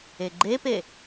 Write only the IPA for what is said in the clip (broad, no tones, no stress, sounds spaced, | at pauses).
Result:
e ɡ͡ǃ e p e